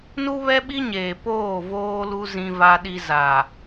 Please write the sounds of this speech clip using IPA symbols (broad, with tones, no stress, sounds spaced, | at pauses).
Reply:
n u˦ β ɛ˦ ɓ i˦ ɲ eː˨ p oː˦˨ v oː˦ l u˦ z ĩ˦ v a˦ ɗ i˦ z a˨